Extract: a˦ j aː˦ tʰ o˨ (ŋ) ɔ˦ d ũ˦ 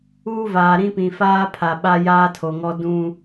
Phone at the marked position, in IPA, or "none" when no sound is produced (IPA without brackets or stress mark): ŋ